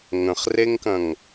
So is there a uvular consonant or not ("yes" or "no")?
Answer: yes